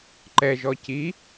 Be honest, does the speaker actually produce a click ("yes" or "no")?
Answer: yes